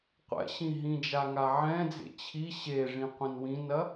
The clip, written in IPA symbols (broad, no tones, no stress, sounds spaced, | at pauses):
qʷ ɛ̰ ɕ ĩ ɦ ĩ d͡ʒ a ŋ a ʕ ɛ̃ d͡z ḛ t͡ɕʰ i ɕ e ʐ ĩ qʷ ĩ n w ĩ n ɐ